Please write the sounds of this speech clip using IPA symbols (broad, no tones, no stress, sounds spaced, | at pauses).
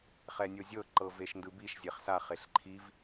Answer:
χ ɛ nʲ o zʲ ɤ ǃ ɤ v e ʃ n d ɯ b i ʃ zʲ e χ s a χ e ɬ ǃʰ i v